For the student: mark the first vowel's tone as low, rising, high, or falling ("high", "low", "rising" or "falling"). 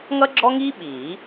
high